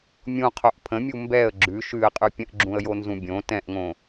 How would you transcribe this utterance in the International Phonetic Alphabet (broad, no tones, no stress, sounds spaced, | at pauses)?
mʲ ũ qʰ o ʔ pʰ ə̃ mʲ u m b ɛ ə̯ ɡ͡ǁ ʉ ʃ ʉ ə̯ qʼ ʉ pʲ ə̃ ʔ ɡ͡ǁ ũ ə̯ j o n z ũ bʲ õ t ɛ̃ ʔ ŋ õ